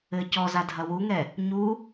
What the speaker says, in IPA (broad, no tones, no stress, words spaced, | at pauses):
ɘ cɔza dʱɐwuŋɛ | ɲu